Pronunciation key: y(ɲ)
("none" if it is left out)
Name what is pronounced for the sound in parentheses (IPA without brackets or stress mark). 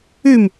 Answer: m